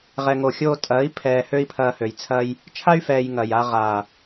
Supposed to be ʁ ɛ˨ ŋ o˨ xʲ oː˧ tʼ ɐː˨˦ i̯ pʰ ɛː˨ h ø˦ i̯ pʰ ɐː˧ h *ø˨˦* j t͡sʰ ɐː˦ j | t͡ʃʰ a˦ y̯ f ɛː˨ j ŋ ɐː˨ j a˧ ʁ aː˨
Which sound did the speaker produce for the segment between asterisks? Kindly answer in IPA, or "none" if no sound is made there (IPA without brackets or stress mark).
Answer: ø˨